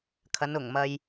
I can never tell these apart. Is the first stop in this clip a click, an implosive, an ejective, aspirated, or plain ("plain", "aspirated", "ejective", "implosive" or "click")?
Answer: aspirated